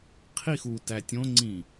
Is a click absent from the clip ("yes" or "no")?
no